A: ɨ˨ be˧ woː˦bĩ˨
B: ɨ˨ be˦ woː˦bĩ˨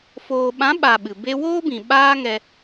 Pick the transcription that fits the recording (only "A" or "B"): B